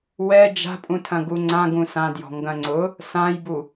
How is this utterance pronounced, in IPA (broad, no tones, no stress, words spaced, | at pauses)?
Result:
wɛ d͡ʒa̤pʼũtʰɐ̃ ɡuŋ͡ǀã ɡũsãdjɔ̤ ŋɡɐ̃ŋ͡ǀʊ | sãjbu